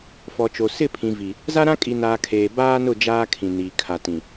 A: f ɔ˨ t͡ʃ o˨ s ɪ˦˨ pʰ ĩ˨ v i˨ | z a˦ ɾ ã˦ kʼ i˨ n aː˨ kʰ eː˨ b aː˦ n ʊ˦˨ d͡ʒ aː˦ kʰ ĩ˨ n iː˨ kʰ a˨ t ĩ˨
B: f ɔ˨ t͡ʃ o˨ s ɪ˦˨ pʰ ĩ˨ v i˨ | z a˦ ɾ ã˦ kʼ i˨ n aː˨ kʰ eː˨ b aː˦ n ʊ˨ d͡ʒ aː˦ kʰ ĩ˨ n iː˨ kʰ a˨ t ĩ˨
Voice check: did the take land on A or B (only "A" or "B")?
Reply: A